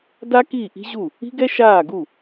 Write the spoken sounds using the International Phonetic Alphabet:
da˥kiː˥˩ ʔi̤˥ʑu˥˩ | i̤˥ɡɛ˥ʃaː˥˩ɡu˥˩

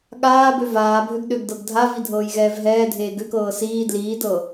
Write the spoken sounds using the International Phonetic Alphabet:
ɠaː bøvaːbʱøɡ ɗøɡdɤɡdʱavi dʱɤːjɣɛːvɦɛːdʱeː ɡøkɤː siː dliːdɤ

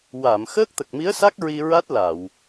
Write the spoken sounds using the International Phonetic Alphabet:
wa˨˩˨m xəː˦˥k̚t̪ə˨˩k̚mi˧˥ə̯sa˦˥k̚ ɹi˧ɹa˦˥t̚la˨˩˨w

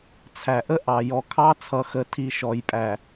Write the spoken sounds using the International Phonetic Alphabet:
t͡sʰæ˨ʔə˦ʔɑ˨ jɔ˨kʰɑ˦t͡sʰʌ˨xə˨ tʰi˦ʃɔ˨jpʼæ˨

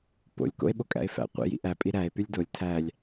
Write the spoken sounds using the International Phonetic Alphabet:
po̰lʲ ko̰e̯ɓokʼæ̰e̯fæ̰ qʷḭ jḭʔæpʼi ɾæe̯ pylʲdolʲ tʰælʲ

